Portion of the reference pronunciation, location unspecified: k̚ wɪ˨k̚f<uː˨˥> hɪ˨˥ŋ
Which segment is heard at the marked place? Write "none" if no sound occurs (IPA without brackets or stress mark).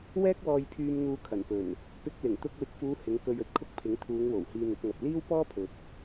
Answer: uː˨˧